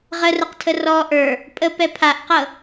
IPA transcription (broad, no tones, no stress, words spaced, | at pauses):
ʁərəqtʰə rɔ ʔə˞ | pʼəpɛ pʰaʔqɤ